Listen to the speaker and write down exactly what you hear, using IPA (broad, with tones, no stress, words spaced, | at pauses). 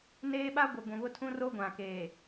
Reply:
neː˦ɓa˦ ɡʷɪ˨ ɡʷũ˨βʊ˦tʰũ˦ ro˦ɡʷã˨keː˨